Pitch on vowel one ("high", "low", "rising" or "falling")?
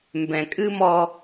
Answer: low